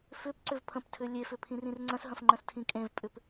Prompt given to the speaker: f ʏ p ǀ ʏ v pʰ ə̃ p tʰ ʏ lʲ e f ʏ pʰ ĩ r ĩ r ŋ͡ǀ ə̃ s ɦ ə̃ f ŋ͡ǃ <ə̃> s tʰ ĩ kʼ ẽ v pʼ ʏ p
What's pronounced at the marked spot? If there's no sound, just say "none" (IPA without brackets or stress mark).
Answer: ə̃